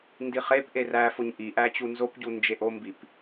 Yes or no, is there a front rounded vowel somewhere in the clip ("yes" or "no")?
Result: no